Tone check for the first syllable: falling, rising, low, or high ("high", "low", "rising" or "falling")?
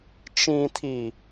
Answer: low